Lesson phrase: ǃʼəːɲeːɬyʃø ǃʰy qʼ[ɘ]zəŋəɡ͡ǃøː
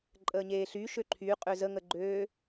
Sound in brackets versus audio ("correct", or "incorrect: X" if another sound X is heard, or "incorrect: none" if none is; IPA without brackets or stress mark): incorrect: ø